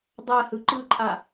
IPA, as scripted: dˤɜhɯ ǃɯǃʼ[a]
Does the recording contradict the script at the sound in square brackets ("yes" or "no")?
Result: no